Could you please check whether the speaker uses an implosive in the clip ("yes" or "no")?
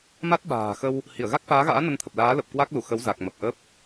yes